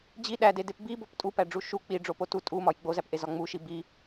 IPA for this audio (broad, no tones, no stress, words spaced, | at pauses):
d͡ʑi ɗædedep bibop tʼupæɖ͡ʐu ʃu k͡piɖ͡ʐopo tu tʼumɒj ɡ͡bozæpʔezɒ ŋ͡muʃi bi